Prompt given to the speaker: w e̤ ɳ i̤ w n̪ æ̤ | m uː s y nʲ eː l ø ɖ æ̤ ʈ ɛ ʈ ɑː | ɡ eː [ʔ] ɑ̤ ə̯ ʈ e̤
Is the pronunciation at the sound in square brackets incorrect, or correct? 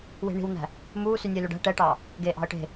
correct